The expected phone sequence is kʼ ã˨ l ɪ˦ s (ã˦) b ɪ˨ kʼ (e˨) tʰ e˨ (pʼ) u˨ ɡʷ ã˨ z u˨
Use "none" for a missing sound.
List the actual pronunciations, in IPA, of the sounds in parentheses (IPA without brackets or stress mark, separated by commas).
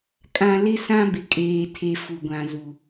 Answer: ã˦, eː˨, f